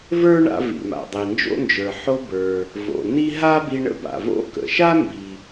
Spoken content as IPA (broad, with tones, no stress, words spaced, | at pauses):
və˞˥ɳa̰˧ vḭ˩ma̰˩dˤi˩ nd͡ʒo̰˥nd͡ʒə˞˩ ħo˧bə˞˩ | vo̰˩ni˥ ɦa˥bi˧ ɳə̰˥ba̰˩vo̰˥ kə̰˩ʃa˥ mbi˩